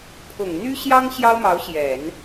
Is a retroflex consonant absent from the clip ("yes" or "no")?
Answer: yes